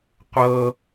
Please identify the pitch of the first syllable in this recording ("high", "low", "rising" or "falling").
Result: high